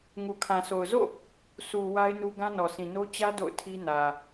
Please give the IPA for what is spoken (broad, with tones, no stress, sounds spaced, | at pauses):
ŋ u˨ kʰ ã˨ s o˨ ʊ̯ z o̰˦˨ | s u˨ w a˦ ɪ̯ n u˦ ɡ ã˦ n ɔ˨ s ĩ˨ n o˦ t͡ɕ ä˦ d o̰˦˨ ʊ̯ tʰ i˦ n ä˨